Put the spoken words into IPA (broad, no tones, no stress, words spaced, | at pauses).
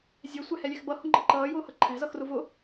zʲɛsʷæhɛlʲɛx bʌhʊŋ͡ǃʌ ǃʌːjʊːhʌ ǃʰæ̤zʌxrʊ vʊ